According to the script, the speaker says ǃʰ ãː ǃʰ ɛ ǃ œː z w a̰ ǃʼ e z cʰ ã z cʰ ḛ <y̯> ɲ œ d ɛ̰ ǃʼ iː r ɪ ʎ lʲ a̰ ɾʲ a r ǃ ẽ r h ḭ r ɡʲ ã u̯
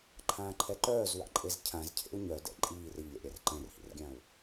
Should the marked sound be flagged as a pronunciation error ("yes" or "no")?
yes